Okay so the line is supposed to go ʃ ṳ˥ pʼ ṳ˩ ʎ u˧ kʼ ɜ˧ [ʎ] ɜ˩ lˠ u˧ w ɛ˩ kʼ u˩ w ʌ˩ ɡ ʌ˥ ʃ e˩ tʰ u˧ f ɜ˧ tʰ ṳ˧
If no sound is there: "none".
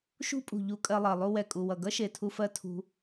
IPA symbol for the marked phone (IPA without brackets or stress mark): lˠ